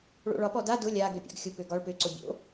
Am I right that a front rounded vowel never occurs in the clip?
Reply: no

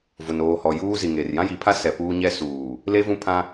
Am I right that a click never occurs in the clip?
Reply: yes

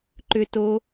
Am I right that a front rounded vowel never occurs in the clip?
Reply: no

